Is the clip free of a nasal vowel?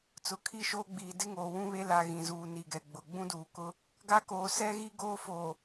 no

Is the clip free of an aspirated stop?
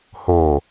yes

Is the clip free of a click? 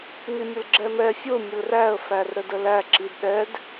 no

